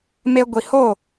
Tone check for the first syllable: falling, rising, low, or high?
high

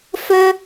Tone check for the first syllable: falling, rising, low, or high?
high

